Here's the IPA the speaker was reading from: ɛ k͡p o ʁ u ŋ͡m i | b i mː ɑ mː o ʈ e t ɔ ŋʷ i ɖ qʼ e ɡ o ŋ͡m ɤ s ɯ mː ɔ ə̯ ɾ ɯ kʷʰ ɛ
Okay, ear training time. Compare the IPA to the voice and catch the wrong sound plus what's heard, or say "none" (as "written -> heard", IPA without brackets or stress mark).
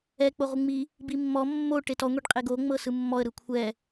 ɑ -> ɔ